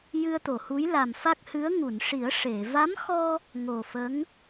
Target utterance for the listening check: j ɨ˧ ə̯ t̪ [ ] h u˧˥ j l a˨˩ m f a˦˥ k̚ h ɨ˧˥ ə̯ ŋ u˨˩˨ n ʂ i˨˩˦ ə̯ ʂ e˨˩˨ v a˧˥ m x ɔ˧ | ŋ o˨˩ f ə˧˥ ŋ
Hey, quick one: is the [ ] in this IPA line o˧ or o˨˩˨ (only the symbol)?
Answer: o˨˩˨